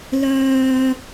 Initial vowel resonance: oral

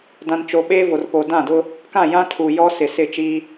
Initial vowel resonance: nasal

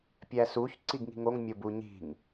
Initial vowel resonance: oral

